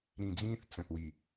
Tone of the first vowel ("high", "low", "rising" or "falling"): low